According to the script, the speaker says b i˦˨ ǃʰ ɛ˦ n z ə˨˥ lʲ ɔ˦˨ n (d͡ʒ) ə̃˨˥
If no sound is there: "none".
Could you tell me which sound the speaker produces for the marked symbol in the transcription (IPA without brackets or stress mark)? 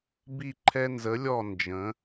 d͡ʒ